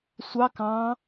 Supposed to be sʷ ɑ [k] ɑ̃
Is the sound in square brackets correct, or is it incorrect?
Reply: correct